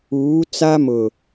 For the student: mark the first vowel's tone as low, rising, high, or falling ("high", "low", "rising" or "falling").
rising